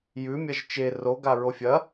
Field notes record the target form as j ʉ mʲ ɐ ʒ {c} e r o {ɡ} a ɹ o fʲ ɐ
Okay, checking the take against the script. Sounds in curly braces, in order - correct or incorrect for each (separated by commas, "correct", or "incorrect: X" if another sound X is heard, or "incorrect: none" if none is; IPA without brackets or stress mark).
incorrect: t͡ʃ, correct